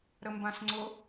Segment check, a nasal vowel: present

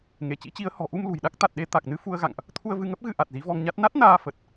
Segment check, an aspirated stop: present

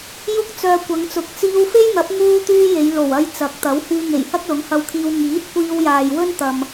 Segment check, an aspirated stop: present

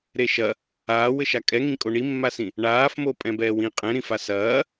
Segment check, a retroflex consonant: present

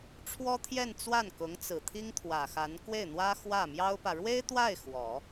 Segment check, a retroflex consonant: present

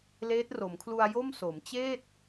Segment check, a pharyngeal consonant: absent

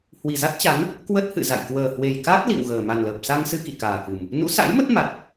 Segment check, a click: absent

